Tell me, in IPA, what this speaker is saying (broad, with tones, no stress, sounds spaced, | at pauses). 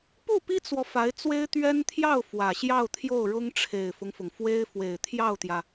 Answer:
p u˥˩ p i˥ t͡s w ɔ˨ f a˧˥ ɪ̯ t͡s w e˥ ɪ̯ t̪ ɥ ɛ˥ n t̪ʰ j ɑ˥˩ ʊ̯ f w ä˨˩ ɕ j ɑ˥˧ ʊ̯ t̪ʰ j o˥˩ ʊ̯ ɻ ʊ˥ ŋ ʈ͡ʂʰ e˨˩ ɪ̯ f ʊ˦ ŋ f ʊ˩ ŋ f w e˥ ɪ̯ f w e˨˩ ɪ̯ t̪ʰ j ɑ˥˩ ʊ̯ t̪ j ä˩